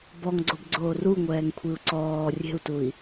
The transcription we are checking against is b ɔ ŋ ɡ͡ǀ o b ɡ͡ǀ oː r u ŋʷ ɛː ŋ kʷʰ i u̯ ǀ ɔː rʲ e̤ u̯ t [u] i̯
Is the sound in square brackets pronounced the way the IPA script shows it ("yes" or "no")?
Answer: yes